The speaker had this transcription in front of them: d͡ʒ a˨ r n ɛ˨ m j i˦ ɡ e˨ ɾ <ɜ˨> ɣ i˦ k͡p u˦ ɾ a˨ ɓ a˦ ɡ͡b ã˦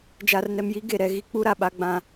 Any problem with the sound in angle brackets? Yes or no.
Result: yes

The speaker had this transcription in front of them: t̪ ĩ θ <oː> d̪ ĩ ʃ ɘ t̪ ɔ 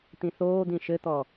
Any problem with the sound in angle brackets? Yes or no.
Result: no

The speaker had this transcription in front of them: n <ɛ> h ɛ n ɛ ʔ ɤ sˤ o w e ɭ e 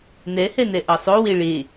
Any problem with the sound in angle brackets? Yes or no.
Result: no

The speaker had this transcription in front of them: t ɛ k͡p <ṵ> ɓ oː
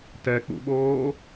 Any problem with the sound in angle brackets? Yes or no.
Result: no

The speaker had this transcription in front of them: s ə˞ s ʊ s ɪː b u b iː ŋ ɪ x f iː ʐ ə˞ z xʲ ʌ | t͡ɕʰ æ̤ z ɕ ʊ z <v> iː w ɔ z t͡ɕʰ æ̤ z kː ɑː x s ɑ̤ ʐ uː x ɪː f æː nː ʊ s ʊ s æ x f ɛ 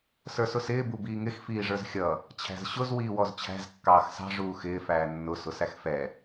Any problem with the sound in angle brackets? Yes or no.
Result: yes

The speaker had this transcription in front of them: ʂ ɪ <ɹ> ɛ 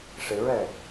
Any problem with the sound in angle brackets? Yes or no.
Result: no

